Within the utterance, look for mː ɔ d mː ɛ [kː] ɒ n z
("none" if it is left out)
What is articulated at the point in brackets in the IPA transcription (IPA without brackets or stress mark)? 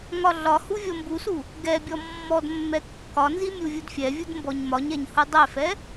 kː